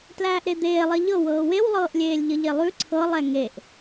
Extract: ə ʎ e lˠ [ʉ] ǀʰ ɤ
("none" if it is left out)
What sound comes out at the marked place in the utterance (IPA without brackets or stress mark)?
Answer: ʉ